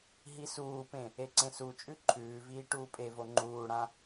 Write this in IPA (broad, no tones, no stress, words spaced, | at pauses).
ɦisuːpẽ | eǀẽsut͡ʃʼʉ ǃʰʉːviː ʈuːpʼevo ŋ͡ǃuːɽã